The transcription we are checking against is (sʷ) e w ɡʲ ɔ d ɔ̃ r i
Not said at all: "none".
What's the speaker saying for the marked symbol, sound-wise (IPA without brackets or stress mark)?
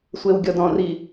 sʷ